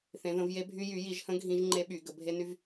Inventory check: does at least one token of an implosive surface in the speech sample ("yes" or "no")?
yes